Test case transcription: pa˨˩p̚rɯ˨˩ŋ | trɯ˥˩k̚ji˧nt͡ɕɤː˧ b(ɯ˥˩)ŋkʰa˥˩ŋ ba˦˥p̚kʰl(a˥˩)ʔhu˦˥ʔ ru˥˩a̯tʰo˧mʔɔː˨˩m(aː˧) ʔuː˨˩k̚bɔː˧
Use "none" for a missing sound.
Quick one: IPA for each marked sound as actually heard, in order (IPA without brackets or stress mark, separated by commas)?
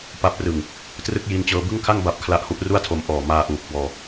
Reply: ɯ˥˩, a˦˥, aː˧